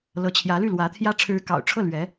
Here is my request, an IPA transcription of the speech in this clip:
l ɤ˧˥ t͡ɕʰ j ä˧˥ l y˥˩ l w ä˧˥ t̪ʰ j ä˥ ʈ͡ʂʰ ɻ̩˧˥ k ɑ̰˨˩ ʊ̯ ʈ͡ʂʰ ɤ˥˩ l ɥ ɛ˧˥

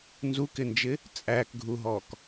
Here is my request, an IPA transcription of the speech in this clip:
n z u k ɪ n d͡ʒ ɪ | t͡sʼ æ k ɡʱ u ɦ ɔ k

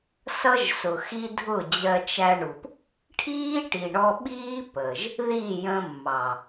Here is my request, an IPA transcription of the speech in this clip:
s ʌ˦ ʒ s ʊ˨ x i˦ dʱ ʊ˦˨ d͡ʑ ɜ˧ t͡ʃ æ˧ ɳ u˨ p | ʈʰ iː˦ ʈ i˨ ɳ ɔ˧ ɓ iː˦ p ə˨ ʒ | ð iː˦˨ j ə̃˧ mː ɑ˨

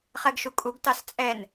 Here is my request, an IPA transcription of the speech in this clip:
χ ɛ ɡ ʃ u kʼ u ɡ t ɑ s t͡sʼ ɛ n

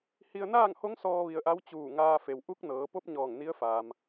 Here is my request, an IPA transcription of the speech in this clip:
h i˧ ə̯ n aː˥˨ ŋ h o˧˥ ŋ s ɔː˧ ʋ i˧ ə̯ ʔ a˧˥ w t͡ɕ uː˧˩ ŋ aː˧ f e˩ w ʔ u˧˥ k̚ n ɤː˩˧ p o˧˥ p̚ ɲ ɔː˧˩ ŋ n i˧˥ ə̯ f aː˩ m

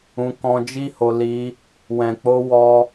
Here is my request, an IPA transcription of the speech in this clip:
ũ˧ k ɔ̃˧ d͡ʒ i˦ h o˧ l i˧ | w ɛ̃˨ k͡p o˧ w ɔ˦

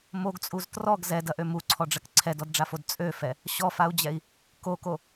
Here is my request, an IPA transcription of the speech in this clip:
m o ɡ t͡sʼ u z t r ɔ ɡ z ɛ d ɐ ʔ ø m u ǀʰ ɔ ɖ͡ʐ ɐ k ǀʰ ɛ d ɔ d ɖ͡ʐ a f o d t͡sʼ ø f ɛ | ɕ ɔ f a u̯ d͡ʑ ɛ i̯ | k o k o

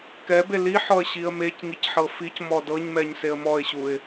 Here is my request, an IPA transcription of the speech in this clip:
k ɛ b e l i ħ ɔ ə̯ ɕ i ə̯ m e c ŋ i c ħ ɤ f i c m ɔ d ɤ ɲ m ɛ ɲ s e ə̯ m ɔ ɪ̯ ɕ u ɪ̯

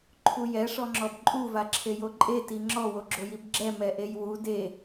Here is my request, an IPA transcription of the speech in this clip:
ǃʰ u j ɛ ʂ ɔ ŋ͡ǁ ɔ b ǃʼ u v a ǁʰ e j o ǃʼ e t i ŋ͡ǁ ɔ w o ɡ͡ǁ o j i b ɡ͡ǁ ɛ m ɛ ʔ e j w u d e

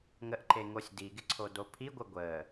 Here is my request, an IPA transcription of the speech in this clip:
ŋ ə ʔ ǃ e ŋ o sʲ d i ɡ ɪ ǀʰ o d o pʰ i ɡʷ ɪ ɡʷ ə

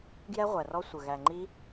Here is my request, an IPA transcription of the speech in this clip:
ɡ j ɛ˦˥ ʁʷ æ˨˩ r ɔ˦˥ sʷ ə˨˩ ɣ æ˨˩ ŋ͡ǃ i˦˥

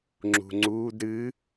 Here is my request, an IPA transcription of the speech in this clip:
ŋ͡ǁ ṳ ŋ͡ǀ uː d ɾ ɨː

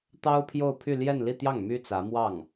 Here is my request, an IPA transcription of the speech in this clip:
t̪ ɑ˥ ʊ̯ pʰ j o˥˧ ʊ̯ pʰ y˥˧ l j ɛ˥˧ n l i˥˧ t̪ j ɑ˥˩ ŋ m y˥ t͡s ä˧˥ m w ɑ˥˩ ŋ

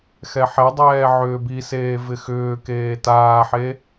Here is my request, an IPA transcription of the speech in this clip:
x ɛ ħ ɛ dˤ ɛː ʕ ʏː b i s eː v ɪ x ʏː k eː t aː ħ e

